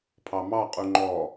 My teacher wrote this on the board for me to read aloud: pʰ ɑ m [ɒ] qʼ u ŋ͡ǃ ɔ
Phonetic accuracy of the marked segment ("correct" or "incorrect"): incorrect